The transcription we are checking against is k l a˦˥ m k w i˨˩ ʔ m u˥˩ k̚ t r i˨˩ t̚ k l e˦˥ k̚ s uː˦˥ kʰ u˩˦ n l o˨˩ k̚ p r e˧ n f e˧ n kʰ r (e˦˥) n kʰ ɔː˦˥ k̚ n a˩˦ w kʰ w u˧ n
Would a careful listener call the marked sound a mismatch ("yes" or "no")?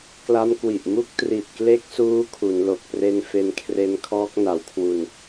no